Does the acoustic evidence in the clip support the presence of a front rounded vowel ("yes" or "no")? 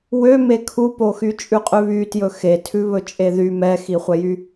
yes